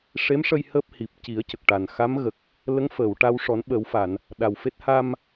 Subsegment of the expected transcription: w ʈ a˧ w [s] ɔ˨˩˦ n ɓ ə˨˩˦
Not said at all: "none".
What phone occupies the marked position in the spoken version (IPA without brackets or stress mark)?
ʂ